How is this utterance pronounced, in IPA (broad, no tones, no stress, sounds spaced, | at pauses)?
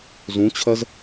z ũ t͡ɕʰ ɜ z